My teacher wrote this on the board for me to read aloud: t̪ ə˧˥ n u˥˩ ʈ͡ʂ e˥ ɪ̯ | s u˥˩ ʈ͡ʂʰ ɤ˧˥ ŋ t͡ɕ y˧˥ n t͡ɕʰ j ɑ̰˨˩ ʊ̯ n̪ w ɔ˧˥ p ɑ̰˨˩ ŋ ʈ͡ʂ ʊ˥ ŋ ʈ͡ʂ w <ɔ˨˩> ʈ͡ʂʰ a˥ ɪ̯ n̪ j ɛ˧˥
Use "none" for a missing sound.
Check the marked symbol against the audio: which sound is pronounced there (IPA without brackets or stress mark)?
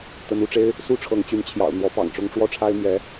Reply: ɔ˥˩